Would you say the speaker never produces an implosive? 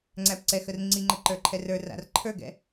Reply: yes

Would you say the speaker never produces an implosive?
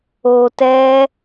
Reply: yes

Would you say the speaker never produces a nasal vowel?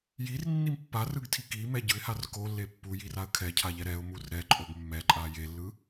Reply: yes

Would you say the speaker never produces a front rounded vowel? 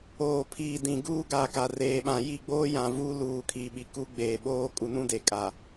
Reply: yes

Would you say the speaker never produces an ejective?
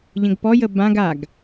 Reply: yes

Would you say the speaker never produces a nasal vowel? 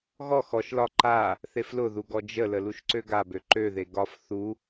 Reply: yes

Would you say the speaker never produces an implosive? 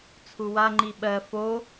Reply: no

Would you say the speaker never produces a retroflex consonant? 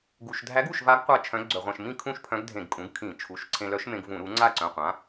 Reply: yes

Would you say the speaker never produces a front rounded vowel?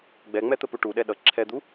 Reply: yes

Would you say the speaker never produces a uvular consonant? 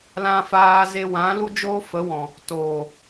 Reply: yes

